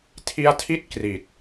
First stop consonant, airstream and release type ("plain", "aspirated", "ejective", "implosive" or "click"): aspirated